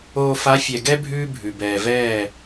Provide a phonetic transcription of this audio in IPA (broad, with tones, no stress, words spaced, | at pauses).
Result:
oː˨fa˨˦ fʲɛ˨ɡɛ˦ bʱʉː˦bʱʉ˨ bɛː˨ vɛː˦˨